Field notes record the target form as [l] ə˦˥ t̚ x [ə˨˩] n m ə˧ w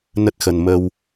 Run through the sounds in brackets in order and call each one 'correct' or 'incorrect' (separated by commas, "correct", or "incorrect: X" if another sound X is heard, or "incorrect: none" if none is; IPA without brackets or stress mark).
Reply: incorrect: n, incorrect: ə˧